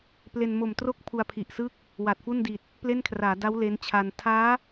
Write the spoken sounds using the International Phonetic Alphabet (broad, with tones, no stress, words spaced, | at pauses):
ple˧n mo˨˩mtro˥˩k̚ pʰu˧a̯pʰi˨˩ʔsɯ˥˩k̚ | wa˨˩t̚fu˥˩ndi˨˩t̚ | ple˥˩nkʰraː˩˦ da˦˥w le˦˥nt͡ɕʰa˧n tʰaː˦˥